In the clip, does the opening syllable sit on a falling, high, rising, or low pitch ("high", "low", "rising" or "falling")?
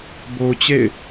low